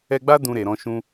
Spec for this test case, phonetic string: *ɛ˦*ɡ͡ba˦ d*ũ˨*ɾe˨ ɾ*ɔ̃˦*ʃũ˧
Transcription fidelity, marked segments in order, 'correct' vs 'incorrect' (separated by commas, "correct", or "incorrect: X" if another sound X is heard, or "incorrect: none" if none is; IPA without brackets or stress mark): incorrect: ɛ˧, incorrect: ũ˧, incorrect: ɔ̃˧